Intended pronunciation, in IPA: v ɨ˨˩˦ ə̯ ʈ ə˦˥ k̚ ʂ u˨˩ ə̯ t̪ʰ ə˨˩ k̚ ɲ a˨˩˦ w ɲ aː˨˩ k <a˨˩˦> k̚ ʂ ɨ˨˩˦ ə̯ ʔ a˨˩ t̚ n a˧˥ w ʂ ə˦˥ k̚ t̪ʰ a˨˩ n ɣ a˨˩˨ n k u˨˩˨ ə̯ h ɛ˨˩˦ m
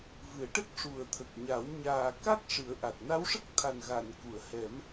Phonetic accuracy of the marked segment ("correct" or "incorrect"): incorrect